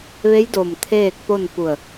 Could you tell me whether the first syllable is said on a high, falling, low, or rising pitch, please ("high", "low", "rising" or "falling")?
rising